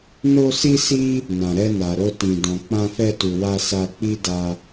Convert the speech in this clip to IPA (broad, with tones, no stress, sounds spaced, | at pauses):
n o˦ s i˦ s i˦ | n ã˨ ɾ ɛ˧ n a˨ ɾ o˧ t ĩ˨ d ɔ̃˨ k͡p ã˧ f ɛ˧ t u˨ w a˧ s a˧ k͡p i˦ d a˧